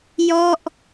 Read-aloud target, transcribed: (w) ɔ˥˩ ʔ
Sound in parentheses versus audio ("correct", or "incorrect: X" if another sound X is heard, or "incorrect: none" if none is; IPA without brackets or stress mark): incorrect: j